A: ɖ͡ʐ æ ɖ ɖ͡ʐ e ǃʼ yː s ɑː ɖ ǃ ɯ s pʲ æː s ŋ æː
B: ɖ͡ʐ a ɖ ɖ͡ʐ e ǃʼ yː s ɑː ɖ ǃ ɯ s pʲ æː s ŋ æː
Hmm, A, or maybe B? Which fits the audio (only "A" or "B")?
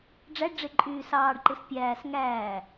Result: A